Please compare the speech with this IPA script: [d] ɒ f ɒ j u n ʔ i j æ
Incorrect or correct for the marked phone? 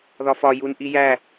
incorrect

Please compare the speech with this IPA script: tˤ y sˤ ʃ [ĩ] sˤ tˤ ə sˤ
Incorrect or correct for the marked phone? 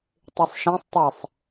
correct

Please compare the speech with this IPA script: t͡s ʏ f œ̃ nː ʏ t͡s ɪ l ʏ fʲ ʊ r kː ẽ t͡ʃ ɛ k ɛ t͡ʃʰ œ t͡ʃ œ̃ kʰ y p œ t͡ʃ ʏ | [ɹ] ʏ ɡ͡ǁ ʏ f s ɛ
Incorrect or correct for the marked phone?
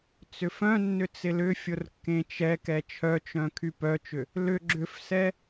incorrect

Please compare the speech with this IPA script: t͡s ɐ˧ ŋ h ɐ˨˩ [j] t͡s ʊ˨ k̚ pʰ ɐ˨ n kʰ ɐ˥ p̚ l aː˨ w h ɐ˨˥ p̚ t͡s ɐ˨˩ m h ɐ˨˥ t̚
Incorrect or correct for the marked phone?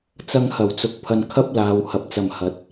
incorrect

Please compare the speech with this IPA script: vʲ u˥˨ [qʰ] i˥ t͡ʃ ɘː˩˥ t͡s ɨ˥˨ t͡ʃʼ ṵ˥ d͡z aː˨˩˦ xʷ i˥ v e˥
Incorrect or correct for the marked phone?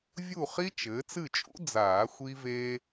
incorrect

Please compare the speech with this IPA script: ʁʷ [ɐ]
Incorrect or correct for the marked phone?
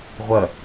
correct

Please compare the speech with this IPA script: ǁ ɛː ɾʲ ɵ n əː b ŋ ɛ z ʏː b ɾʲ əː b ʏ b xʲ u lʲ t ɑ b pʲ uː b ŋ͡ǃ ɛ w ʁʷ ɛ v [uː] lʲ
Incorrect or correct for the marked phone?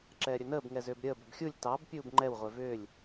incorrect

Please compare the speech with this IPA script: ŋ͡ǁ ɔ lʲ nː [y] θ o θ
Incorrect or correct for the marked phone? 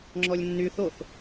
correct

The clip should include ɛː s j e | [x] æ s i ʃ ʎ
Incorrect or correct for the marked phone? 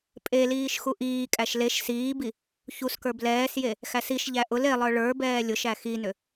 correct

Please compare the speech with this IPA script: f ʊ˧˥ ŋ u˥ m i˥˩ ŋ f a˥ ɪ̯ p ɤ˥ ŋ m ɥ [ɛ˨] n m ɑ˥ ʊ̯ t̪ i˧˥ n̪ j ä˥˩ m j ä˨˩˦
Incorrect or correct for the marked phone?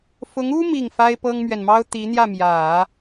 correct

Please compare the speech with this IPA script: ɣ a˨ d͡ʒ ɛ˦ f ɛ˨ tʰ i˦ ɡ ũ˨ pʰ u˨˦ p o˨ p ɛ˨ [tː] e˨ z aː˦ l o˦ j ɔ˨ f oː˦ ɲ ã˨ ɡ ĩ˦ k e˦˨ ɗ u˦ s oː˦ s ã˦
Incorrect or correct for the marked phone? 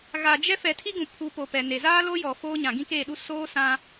incorrect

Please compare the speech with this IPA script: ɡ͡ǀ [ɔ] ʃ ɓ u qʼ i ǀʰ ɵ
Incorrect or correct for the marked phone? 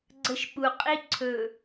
incorrect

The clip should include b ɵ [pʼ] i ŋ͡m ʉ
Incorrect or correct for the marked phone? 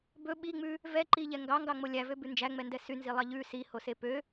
incorrect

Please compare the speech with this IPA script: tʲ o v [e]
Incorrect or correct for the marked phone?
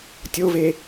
correct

